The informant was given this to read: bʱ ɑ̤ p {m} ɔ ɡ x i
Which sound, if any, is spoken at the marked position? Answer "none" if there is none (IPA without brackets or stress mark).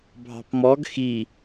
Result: m